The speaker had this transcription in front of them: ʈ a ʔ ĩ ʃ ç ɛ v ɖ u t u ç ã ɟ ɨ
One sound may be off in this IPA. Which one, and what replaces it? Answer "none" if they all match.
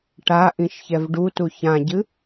none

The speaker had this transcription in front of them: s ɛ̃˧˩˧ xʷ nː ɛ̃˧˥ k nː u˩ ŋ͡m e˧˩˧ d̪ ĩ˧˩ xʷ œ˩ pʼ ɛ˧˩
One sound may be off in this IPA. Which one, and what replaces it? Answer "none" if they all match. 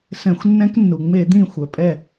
none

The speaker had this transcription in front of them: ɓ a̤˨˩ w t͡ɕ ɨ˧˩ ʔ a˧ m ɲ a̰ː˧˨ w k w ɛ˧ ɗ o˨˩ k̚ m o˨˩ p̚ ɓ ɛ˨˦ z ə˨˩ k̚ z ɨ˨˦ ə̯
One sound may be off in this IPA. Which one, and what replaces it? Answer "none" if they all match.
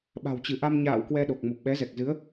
ə˨˩ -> ɛ˨˩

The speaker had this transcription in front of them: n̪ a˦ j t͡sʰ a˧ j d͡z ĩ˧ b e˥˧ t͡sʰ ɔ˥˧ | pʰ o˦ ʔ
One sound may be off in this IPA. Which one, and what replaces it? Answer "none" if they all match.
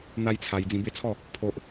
none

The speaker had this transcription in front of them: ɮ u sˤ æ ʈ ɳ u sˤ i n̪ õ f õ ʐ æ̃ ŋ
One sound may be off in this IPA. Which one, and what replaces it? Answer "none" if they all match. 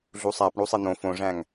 ʈ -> p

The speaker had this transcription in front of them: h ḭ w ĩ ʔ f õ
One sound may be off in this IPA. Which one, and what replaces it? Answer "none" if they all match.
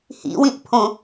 f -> pʰ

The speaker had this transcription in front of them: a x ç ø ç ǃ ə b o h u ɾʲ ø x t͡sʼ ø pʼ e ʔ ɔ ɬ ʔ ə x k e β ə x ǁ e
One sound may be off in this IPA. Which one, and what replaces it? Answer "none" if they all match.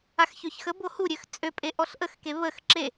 ǃ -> x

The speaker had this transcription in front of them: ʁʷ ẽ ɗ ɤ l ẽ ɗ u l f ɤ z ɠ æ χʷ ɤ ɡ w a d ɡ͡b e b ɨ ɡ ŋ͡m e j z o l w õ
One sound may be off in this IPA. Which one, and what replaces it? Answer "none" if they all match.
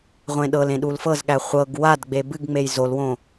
none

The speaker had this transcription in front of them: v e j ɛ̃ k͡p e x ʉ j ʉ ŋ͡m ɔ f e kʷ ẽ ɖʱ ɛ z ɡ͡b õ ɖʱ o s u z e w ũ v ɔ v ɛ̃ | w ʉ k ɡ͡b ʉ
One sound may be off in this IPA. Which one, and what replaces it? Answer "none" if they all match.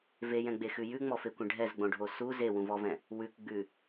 k͡p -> ɡ͡b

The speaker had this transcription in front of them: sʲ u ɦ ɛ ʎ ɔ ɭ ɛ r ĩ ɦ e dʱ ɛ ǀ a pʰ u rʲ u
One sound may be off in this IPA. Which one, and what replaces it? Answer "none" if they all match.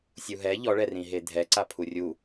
none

